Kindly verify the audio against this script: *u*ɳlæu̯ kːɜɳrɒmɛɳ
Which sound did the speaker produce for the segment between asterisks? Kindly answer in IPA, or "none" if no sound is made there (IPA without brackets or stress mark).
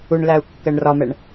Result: u